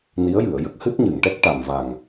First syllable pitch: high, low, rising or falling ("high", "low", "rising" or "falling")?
rising